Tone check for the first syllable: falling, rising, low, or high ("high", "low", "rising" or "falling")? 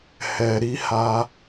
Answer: low